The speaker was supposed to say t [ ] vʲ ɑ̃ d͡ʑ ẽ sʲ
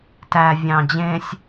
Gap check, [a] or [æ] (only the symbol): æ